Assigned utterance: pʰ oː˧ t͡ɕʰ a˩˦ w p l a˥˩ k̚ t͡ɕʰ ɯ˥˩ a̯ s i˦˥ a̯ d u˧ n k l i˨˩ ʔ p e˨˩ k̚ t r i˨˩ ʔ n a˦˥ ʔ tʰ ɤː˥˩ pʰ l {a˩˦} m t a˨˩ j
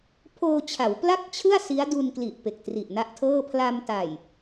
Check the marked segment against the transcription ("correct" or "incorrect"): incorrect